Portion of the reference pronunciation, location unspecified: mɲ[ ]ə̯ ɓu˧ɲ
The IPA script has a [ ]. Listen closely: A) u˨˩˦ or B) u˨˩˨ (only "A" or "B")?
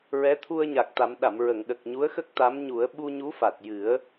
A